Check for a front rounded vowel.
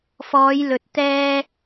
absent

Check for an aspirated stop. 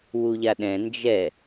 absent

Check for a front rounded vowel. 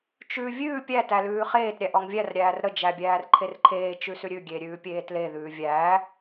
absent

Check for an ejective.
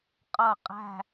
present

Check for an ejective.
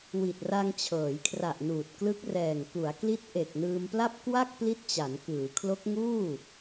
absent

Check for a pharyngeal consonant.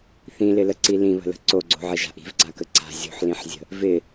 present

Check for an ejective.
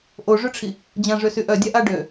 absent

